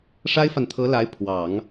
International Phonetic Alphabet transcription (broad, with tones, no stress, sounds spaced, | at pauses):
ʂ a˥ ɪ̯ f a˨ n t̪ʰ ɤ˧˥ l a˧˥ ɪ̯ pʰ w ɑ˨˩˦ ŋ